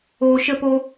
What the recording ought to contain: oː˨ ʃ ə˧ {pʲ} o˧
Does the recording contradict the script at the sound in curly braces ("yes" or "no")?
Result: yes